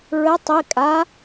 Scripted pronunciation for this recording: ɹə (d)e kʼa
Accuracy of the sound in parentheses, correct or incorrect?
incorrect